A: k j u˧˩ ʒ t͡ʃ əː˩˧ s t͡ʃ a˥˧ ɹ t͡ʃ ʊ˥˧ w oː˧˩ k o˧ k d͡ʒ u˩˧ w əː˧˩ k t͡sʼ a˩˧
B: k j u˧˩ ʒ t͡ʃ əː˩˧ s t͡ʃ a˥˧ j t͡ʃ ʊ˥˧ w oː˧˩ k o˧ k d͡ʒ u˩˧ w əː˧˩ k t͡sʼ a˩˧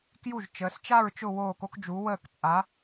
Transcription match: A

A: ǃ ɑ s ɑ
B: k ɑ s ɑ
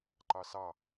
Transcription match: A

